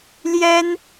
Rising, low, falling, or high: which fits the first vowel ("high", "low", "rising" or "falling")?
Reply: high